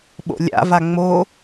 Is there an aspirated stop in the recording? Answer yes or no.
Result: no